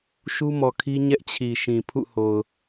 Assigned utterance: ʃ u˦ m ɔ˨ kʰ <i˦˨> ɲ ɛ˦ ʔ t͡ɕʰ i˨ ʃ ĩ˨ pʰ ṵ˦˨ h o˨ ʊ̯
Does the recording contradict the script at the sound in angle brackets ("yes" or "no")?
yes